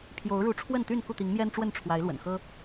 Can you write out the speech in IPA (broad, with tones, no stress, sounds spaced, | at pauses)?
pʰ j o˨˦ ʊ̯ ɻ u˨˦ ʈ͡ʂʰ w ə˥˨ n t̪ y˥˨ n k u˥˨ t̪ i˨˦ ŋ m j ɛ˦ n ʈ͡ʂ w ə˥˨ n ʈ͡ʂʰ w a˨˦ ɪ̯ l w ə̰˨˩ n x ɤ˦